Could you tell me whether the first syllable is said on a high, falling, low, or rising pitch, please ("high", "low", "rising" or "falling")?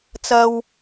high